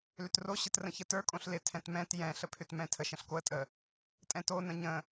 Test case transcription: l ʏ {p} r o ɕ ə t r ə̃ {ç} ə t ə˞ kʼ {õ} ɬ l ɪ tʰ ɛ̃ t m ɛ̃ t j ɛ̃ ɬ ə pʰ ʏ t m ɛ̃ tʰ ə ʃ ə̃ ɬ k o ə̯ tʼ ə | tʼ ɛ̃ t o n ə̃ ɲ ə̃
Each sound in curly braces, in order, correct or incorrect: incorrect, correct, correct

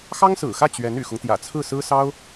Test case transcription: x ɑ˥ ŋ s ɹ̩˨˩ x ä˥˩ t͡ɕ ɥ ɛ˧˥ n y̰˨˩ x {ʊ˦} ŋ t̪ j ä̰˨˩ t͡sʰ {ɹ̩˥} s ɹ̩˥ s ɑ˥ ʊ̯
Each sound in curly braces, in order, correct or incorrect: correct, incorrect

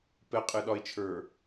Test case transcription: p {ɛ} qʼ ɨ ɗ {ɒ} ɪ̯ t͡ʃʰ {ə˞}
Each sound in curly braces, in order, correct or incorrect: correct, correct, correct

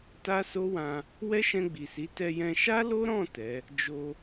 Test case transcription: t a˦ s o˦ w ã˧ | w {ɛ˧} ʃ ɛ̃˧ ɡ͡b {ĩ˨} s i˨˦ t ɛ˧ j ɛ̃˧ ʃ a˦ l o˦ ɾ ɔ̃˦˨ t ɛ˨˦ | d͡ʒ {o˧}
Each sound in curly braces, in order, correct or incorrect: incorrect, incorrect, correct

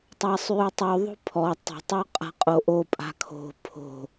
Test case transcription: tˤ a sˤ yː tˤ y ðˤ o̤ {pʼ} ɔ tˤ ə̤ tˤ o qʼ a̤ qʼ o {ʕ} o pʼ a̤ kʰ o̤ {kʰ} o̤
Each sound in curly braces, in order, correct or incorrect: incorrect, incorrect, incorrect

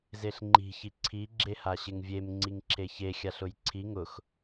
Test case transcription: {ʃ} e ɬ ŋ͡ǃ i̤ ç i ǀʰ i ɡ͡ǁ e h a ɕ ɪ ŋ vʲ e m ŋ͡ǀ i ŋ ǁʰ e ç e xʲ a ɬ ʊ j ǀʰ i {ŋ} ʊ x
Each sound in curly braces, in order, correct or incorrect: incorrect, correct

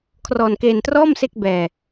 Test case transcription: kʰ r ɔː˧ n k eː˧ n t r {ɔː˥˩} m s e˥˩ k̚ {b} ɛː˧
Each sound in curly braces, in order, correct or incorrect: correct, correct

